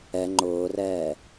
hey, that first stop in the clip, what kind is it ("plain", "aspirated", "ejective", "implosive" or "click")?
click